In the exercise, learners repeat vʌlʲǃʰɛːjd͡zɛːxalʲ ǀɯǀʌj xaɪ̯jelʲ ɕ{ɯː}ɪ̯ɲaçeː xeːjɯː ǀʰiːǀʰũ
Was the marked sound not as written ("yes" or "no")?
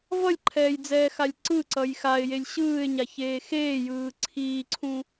no